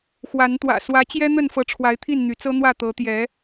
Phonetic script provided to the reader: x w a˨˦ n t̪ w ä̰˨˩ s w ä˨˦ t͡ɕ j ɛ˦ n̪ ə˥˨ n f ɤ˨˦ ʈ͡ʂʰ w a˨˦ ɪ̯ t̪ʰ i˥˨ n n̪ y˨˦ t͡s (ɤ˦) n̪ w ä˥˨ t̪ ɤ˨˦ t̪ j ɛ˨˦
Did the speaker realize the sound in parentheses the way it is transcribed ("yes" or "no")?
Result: yes